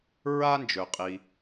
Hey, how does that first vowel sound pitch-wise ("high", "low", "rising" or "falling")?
high